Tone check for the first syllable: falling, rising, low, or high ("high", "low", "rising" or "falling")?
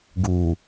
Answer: low